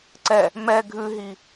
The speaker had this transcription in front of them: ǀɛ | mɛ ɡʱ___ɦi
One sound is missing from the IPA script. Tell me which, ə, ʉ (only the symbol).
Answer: ʉ